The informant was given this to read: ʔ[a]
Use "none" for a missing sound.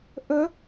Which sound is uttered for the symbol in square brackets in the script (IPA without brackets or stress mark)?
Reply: ə